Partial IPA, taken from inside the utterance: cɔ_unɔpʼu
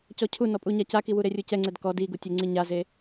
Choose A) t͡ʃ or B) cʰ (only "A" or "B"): B